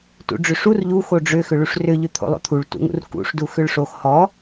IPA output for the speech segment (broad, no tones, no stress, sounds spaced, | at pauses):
t ṵ ɖ͡ʐ ʏ ʂ u r ʎ u x o ɖ͡ʐ ʏ x ʏ ɭ u ʂ r ʏ ʎ ʏ t̪ʰ o̰ lˠ o̰ t̪ʰ u ɭ t ṵ ŋ ṵ r k ṵ ʂ d u x ʏ ɭ ʂ o x h ɔ